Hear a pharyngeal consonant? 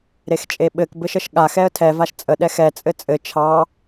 no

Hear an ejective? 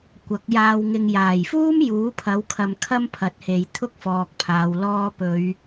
no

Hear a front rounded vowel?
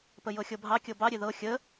no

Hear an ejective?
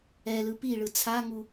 no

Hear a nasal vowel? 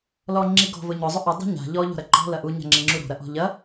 no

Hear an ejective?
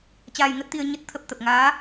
no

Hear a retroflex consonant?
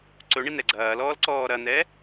yes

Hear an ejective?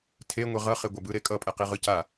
yes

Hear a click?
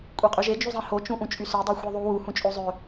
no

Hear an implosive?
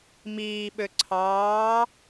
yes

